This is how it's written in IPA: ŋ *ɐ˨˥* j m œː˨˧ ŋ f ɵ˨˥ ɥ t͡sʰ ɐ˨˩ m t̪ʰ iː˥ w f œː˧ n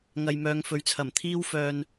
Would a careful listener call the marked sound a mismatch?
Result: yes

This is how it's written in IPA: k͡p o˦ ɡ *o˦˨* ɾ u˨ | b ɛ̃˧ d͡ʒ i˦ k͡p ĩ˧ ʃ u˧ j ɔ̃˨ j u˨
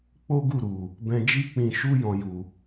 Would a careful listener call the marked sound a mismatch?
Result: yes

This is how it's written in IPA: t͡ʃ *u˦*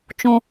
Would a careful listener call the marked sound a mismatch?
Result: yes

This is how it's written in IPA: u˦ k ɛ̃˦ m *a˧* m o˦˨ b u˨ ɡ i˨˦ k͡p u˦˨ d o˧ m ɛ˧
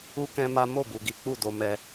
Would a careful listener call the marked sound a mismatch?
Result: yes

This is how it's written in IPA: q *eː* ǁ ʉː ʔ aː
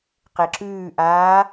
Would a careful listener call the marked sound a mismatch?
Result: yes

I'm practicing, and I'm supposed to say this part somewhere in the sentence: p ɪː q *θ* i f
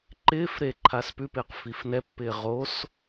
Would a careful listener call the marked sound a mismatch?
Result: yes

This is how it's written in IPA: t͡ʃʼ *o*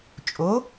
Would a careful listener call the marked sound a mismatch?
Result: no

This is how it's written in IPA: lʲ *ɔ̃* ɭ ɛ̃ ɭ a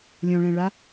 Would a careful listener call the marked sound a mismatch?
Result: no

